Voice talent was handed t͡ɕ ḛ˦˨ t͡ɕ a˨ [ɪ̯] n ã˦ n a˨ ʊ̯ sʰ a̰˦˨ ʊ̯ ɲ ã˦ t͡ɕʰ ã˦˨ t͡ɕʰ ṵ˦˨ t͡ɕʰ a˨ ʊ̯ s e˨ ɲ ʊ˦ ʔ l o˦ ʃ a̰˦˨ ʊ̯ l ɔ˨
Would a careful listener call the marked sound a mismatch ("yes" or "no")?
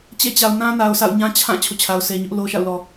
yes